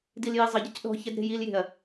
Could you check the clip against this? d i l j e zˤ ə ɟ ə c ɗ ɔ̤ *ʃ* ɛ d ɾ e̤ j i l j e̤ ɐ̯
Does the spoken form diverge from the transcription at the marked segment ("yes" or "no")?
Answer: yes